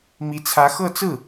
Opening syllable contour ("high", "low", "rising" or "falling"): rising